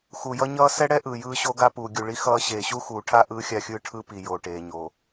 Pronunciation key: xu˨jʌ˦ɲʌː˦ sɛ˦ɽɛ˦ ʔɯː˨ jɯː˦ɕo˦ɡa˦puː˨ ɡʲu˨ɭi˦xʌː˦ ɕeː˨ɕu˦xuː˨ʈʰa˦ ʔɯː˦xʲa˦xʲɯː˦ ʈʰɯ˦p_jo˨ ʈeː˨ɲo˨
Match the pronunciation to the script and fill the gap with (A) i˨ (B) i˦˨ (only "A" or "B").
A